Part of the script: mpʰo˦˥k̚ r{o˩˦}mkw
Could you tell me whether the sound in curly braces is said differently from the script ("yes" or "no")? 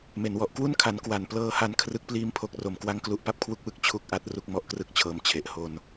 no